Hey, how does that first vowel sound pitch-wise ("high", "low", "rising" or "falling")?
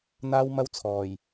high